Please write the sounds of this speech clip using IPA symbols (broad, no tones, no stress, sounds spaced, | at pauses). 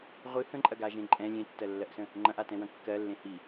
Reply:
ʁʷ ɨ h ə̃ ǃʼ ɐ ɡ a ʒ ẽ ǃʼ ɛ̃ lʲ ẽ tː ɜ lː ɜ ʔ s ə̃ | ŋ͡ǃ ɐ̃ ʔ a t ɛ̃ w ɐ̃ kː ɜ lː ẽ h i